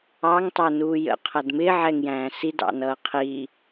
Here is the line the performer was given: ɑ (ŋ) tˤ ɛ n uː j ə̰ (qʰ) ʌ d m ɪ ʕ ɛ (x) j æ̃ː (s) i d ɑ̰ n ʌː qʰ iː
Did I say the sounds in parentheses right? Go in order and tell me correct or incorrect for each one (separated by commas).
correct, correct, incorrect, correct